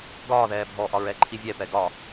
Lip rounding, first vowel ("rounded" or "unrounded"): rounded